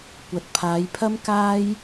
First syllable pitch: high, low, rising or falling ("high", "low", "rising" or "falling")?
low